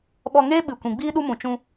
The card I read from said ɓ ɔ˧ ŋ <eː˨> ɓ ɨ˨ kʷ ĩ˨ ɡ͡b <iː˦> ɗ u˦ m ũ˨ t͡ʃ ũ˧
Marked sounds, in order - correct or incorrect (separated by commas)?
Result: incorrect, correct